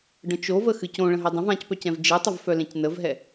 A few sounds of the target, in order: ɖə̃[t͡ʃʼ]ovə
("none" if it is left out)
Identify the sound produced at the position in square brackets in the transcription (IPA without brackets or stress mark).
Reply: t͡ʃ